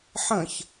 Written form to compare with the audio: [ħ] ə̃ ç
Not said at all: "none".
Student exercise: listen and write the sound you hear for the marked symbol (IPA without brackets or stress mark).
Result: ħ